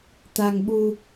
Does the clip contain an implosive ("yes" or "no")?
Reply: yes